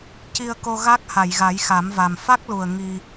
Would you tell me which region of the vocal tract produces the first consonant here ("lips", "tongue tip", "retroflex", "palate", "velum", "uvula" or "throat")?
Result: palate